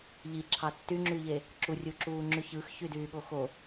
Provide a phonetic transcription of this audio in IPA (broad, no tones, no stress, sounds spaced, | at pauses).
ʎ i ǁʰ ɑ tː y ŋ͡ǁ y ʎ e | ǁ u rʲ u ǁ uː ŋ͡ǁ y ç ɯ x ç y d yː ɠ o x o